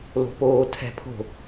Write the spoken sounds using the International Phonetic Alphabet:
lo̤poːtʰɛ̤pʰo̤

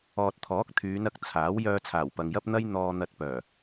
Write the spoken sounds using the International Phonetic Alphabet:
ɔː˨t̚t̪ʰɔː˨˥k̚ t̪ʰyː˨˧nɐ˨k̚ t͡sʰaː˨˥w jœː˧t͡sʰaː˨˩w pɐ˨ŋjɐ˥p̚n̪ɐ˥j n̪ɔː˧n̪ɐ˧t̚pœː˨˩

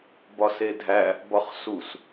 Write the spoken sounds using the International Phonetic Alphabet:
bɒsedʱæ | bɒχsus

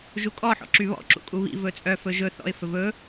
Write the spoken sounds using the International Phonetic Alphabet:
ʒukʼɔ ħɔ̰ǁyβɔ̰ ǁṵkʼuβḭ vɵt͡sʼœ fɵʒɵ θɔ̰ɪ̯ fɵvɵ

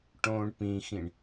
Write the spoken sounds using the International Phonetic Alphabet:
ʈõːɳpĩxĩɳ

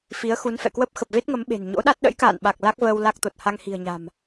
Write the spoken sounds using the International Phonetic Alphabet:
fi˨˦ə̯xu˨˦nfɛ̰˧˨kwə˦˥p̚ xə˨˩p̚ ve˦˥t̚ŋə˨˦m ɓe̤˨˩n ɲo̰˧˥ɗa˦˥t̚ ɗə̰˧˥jka̰ː˧˨nɓa˨˩k̚ la˦˥k̚vəː˧w la˦˥k̚t̪o˨˩t̚ ha˧ŋhi̤˨˩ə̯ɲa̤˨˩m

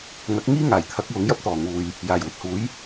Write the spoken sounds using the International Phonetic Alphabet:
ŋɐ˨˥k̚ŋiː˥ŋaː˨˩jt̪ʰɐ˨˥k̚ wʊ˨˥ŋjɐ˥p̚t̪ɔː˨˩ ŋuː˨j | jaː˨˩jwɪ˨k̚huː˨˥j

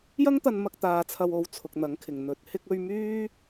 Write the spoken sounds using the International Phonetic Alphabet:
jɐ˥ŋt̪ɐ˧nmɐ˧k̚ t̪aː˧t͡sʰɐ˧wo˨˧wt͡sʰʊ˨k̚ n̪ɐ˨˥ŋkʰɪ˨ŋ n̪ɵ˨˥t̚ hɪ˧k̚ɵ˧ɥ myː˥

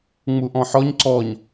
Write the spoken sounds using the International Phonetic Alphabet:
ŋ͡muʔɔ̃ħɔɲ ǀɔɲ

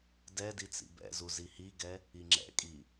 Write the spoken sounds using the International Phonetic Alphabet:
dɛ dit͡sḭbɛ̰zu zihiɡɛ | iŋ͡ǁɛ̰kʼi

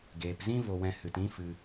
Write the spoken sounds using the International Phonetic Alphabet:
ɡeː˨pzĩ˦ vo˧wɛ̃˧hɨ˨t ĩ˦fɨ˧

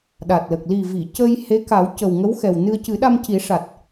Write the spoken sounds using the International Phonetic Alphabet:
ɗa˨˩t̚lə˨˩k̚ li˨˩vi˨˩˨ cə˧jhe˧˥ka˨˩˦w cə˨˩wŋə˧˥w xɛ˨˩wnɨ˧ə̯ cɨ˨˩˦ ɗa˧mci˨˩˦ʂa˨˩t̚

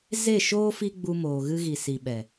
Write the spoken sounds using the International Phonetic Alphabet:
ze˦˨ʃoː˦ fi˦ɡ͡bu˧moː˨ ɣɨ˧ɣi˨si˨ ɓɛ˨

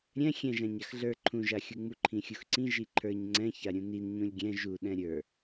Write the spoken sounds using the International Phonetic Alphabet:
ɾʲɛ̃ xʲɛ̃ʒã ɲaxɮə˞ ǃʰũʒaxʲu ŋ͡muǃʰĩxʲuxǀĩ ʒiǃʰə˞ɲ ŋ͡ǀɛ̃ çaɾʲũnin ɲũlʲɡʲɛ̃ ʒuɗɛ̃ ɾʲə˞

